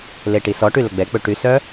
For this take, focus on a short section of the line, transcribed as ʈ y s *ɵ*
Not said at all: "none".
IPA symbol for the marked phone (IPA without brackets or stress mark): œ